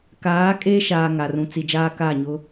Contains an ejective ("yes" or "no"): yes